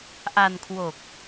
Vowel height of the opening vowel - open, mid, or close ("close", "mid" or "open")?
open